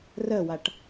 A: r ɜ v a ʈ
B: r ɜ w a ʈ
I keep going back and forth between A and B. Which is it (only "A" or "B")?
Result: B